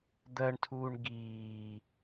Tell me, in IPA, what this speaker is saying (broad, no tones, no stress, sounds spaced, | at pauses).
d̪ ɜ ɳ tʰ uː ɳ ɡ iː